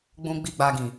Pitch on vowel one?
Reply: low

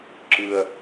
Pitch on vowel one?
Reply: high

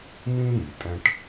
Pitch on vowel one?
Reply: high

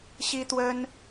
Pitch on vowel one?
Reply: high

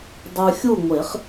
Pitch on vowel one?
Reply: low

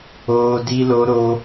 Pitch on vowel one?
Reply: high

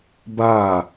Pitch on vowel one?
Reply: falling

